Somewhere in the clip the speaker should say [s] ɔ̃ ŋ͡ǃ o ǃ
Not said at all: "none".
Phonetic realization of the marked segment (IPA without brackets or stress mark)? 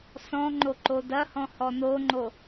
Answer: s